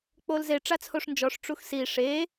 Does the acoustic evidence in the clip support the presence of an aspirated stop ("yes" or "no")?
yes